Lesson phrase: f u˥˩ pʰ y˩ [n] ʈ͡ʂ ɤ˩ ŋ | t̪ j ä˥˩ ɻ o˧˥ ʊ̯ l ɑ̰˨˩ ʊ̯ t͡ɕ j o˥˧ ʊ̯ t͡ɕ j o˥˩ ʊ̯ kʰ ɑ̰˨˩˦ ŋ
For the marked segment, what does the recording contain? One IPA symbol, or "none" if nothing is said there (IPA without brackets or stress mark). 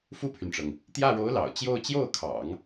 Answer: n